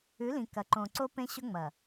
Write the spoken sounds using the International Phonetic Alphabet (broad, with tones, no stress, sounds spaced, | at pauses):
ʉ˨˦ l ĩ˨ k ɐ˨ ǃ õ˨ ǀ o˦ p ẽ˦ ɕ ɵ˦ ŋ͡m ɐ˨